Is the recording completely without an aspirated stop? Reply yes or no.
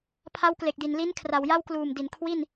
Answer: no